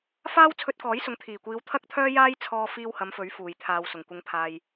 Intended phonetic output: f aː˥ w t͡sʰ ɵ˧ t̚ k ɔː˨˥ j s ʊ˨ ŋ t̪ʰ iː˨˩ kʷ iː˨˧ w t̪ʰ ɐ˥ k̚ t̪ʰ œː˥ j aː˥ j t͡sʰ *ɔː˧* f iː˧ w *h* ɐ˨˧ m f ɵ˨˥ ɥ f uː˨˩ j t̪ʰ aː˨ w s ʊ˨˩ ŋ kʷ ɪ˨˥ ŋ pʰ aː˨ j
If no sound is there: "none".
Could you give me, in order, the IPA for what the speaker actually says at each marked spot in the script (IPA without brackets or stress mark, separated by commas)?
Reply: ɔː˧, h